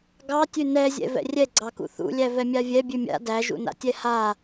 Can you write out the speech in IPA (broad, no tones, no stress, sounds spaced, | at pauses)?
ɡ ɑ tʲ ʉ n ɛ zʲ ɛ̰ v ɛ̰ rʲ ɛ ɡ͡ǀ ɑ k ṵ θ ṵ lʲ æ v ɛ mʲ a vʲ ɛ bʲ ʉ mʲ a̰ d æ ʒ ṵ n a̰ tʲ ɛ h a